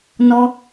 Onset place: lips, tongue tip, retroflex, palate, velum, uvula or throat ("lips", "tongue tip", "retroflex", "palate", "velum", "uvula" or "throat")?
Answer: tongue tip